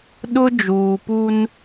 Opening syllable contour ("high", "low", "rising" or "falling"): high